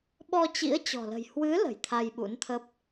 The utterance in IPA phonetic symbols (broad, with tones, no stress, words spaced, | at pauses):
ɓɔ˧t͡ɕḭ˧˥ə̯ t͡ɕɔ̤˨˩lə̤˨˩j hwɨ˨˦ lə̤˨˩jt̪ʰa˧jɓṵ˧˥nt̪ʰə˦˥p̚